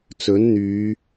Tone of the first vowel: rising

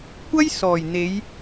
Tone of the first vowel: high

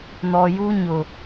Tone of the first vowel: low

